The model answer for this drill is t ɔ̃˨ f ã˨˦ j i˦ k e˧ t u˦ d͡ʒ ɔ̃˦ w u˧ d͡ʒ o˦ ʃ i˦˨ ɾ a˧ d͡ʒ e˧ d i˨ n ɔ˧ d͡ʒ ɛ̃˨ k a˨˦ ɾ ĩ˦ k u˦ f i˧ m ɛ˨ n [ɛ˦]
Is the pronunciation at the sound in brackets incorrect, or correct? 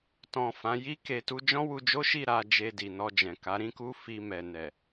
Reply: incorrect